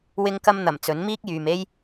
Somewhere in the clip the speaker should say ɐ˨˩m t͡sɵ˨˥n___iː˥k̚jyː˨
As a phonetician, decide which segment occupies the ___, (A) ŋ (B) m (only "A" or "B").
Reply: B